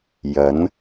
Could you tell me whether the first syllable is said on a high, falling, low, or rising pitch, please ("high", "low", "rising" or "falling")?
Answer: rising